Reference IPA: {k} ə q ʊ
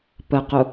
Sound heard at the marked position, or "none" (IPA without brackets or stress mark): p